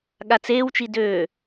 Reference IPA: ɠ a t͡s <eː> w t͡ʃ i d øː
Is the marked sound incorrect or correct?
correct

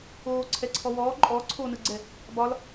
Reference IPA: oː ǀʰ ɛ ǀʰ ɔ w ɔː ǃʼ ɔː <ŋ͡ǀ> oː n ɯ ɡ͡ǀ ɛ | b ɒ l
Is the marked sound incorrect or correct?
incorrect: ǀʰ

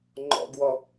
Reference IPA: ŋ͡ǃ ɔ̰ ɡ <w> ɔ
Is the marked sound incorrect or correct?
correct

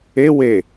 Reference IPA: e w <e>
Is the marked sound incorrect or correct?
correct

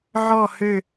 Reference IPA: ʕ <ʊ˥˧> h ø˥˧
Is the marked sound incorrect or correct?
incorrect: ɔ˥˧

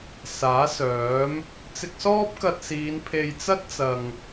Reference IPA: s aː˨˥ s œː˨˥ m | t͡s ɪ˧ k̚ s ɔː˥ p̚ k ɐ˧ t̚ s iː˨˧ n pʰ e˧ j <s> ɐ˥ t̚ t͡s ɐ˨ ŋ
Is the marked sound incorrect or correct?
incorrect: t͡s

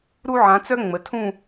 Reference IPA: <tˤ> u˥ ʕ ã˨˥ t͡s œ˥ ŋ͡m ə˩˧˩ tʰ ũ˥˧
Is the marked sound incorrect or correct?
incorrect: ɾ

